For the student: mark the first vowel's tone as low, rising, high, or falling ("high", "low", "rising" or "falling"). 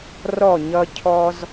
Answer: falling